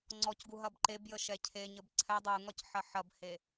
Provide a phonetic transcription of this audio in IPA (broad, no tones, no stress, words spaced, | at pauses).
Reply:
ŋ͡ǀɔcɡu ɦɐbǃebjə ʃɛcʰeɲəb ǀʰɛ dˤuŋɒc ħɐħɐbhe